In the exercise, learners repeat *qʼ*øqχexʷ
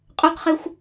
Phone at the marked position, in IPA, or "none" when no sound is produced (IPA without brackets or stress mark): qʼ